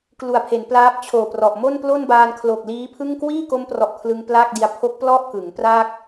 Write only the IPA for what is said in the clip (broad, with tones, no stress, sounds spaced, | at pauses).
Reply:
k l u˨˩ a̯ pʰ e˩˦ n p l aː˦˥ p̚ t͡ɕʰ oː˨˩ p r ɔ˨˩ ʔ m o˥˩ n p l o˥˩ n b aː˧ n kʰ l o˨˩ k̚ l iː˦˥ pʰ ɯ˥˩ ŋ k w iː˥˩ k o˦˥ m p r ɔ˨˩ ʔ kʰ l ɯ˧ ŋ p l aː˥˩ k̚ d i˧ a̯ pʰ o˦˥ k̚ p l ɔ˥˩ ʔ k ɯ˩˦ ŋ p r a˥˩ k̚